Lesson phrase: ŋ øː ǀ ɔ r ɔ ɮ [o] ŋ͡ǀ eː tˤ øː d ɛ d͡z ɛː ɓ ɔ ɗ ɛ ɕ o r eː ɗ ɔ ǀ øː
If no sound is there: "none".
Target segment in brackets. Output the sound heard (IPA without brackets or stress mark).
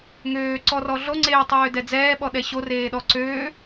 o